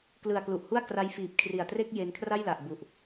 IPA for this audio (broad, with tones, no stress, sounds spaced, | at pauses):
k l ɯ˨˩ a̯ k l u˨˩ ʔ h u˥˩ a̯ k r a˦˥ j f iː˨˩ p̚ kʰ r i˨˩ a̯ t r e˥˩ k̚ j e˧ n kʰ r a˥˩ j l a˨˩ ʔ b u˨˩ ʔ